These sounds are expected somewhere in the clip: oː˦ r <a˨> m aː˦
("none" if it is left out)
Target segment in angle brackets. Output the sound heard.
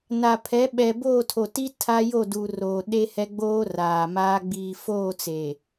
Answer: aː˨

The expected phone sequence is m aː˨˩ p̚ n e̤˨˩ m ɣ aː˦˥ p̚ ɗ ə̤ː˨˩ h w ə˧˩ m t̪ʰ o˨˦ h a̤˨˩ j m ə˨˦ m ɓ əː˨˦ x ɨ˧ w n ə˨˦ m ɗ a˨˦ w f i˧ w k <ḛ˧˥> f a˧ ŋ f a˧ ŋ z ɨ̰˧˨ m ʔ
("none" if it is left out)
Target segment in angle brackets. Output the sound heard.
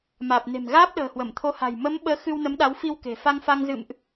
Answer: e̤˨˩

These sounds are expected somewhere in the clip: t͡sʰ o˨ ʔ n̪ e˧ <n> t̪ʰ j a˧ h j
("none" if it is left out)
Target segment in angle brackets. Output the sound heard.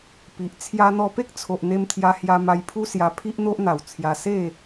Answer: m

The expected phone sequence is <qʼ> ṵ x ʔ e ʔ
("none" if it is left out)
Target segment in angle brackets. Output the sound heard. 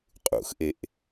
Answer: qʼ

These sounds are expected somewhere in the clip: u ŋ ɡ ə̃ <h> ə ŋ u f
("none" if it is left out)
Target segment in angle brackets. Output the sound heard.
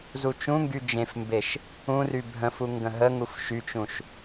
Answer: ɦ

